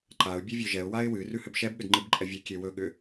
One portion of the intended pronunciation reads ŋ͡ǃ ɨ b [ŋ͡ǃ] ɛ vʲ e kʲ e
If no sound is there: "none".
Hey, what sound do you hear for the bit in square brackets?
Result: ǃʼ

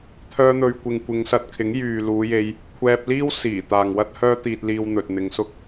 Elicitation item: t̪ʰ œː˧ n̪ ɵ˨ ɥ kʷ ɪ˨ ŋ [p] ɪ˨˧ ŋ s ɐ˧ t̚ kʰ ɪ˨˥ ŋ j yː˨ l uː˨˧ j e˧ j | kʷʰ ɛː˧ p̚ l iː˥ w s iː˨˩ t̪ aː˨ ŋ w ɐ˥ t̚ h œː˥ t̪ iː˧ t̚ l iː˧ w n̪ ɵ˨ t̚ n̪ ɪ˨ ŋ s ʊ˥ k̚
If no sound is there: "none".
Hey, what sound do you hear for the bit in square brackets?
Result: kʷ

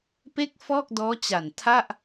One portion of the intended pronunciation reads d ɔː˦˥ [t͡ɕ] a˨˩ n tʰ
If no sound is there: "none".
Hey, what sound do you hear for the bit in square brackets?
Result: t͡ɕ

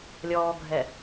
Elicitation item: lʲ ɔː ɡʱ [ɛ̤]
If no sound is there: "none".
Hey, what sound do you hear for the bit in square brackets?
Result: ɛ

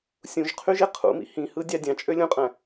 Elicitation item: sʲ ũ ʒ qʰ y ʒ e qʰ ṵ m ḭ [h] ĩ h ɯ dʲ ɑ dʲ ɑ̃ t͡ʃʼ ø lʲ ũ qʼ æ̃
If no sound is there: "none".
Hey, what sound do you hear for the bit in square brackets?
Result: h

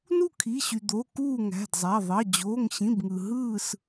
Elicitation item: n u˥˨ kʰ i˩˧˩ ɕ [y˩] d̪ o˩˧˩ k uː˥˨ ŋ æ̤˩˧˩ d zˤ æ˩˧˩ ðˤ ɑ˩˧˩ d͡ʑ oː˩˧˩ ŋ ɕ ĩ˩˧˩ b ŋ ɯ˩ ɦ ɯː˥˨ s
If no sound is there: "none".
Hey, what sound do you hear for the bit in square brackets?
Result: y˩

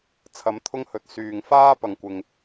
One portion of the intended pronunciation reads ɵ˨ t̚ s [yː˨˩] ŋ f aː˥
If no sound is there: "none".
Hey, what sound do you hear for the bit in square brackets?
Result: yː˨˩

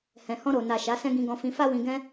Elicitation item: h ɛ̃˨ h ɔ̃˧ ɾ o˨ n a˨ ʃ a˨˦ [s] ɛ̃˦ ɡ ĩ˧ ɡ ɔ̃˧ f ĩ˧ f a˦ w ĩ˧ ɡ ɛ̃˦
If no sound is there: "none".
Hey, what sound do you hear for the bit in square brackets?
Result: s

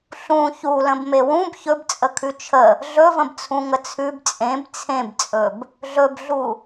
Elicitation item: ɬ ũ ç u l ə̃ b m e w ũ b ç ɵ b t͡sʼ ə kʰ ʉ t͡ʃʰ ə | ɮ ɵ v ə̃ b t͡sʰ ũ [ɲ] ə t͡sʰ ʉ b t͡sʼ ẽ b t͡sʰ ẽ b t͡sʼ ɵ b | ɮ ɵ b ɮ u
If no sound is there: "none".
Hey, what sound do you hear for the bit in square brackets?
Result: ŋ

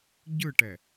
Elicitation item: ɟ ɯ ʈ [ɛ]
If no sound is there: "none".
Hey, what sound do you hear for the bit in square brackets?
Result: ɛ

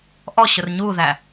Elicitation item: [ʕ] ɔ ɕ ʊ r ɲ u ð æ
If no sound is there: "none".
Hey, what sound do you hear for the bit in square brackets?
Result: ʔ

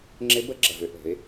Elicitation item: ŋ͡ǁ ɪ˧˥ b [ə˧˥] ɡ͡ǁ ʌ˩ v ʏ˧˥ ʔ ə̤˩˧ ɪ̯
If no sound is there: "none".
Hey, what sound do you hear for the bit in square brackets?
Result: ə˧˥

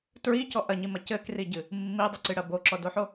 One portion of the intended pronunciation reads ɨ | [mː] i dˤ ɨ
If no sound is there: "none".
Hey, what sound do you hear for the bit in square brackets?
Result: mː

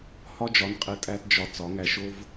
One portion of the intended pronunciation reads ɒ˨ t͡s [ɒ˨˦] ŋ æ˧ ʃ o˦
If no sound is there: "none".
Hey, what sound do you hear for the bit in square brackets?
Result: ɒ˨˦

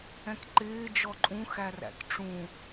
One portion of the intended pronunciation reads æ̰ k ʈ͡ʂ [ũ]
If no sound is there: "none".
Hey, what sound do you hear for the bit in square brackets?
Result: ũ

